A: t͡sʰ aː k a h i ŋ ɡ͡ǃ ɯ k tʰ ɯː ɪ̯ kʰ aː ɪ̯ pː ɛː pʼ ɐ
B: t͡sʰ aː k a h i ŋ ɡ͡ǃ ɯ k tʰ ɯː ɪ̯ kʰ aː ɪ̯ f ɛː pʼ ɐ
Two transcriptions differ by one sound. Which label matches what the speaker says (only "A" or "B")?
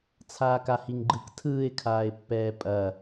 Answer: A